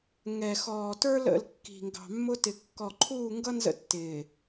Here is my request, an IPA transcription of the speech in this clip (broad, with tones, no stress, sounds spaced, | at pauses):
ŋ ɛ˨ x ɔː˨ t ə˞˦ l ə̰˦˨ l kː i̤˨ ŋ ɡ ɑ̤˨ mː ʊ˦ t ɪ˨ kː ɔ˨ ǃʰ uː˦˨ ŋ ɡ ʌ˦ n z ə̰˦ tː ɪː˨